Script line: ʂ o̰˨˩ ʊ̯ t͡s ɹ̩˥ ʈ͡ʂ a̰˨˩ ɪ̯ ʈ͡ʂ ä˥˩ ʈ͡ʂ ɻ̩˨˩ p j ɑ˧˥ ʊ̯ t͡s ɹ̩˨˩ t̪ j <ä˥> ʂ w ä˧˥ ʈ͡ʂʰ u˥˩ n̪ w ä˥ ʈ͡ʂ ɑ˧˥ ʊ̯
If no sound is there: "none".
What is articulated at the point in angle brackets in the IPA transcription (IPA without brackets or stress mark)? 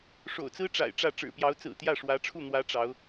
ä˥˩